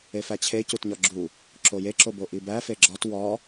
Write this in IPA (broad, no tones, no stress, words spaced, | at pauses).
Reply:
efæt͡ɕʰe cutɲɒɡ͡ǁu | ǁojeǁobo ʔibæ feɡ͡ǁɒt wɒ